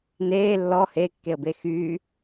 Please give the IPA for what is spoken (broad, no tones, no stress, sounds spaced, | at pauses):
n eː lː ɔ h e kː e ə̯ b e x yː